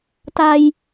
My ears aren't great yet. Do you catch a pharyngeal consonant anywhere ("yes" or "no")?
no